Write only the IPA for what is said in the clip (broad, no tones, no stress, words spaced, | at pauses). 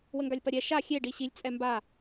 wəŋɡalʲpɐɾʲɛ ʃa xʲe ɖiɕilʲ t͡sʼɛmba